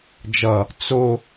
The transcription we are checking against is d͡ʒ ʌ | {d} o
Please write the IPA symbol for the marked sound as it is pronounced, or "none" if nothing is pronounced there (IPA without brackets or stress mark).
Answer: t͡s